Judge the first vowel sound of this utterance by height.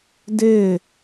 high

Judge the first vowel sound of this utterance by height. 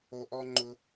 mid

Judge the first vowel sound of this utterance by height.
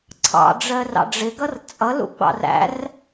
low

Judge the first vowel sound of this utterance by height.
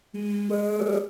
mid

